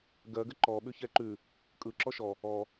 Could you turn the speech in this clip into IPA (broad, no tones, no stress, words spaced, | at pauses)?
ɡɜɡə ǃɔ ɓʉçɛǃʉ | kʼɯ ǁɔʃɔ | ɔ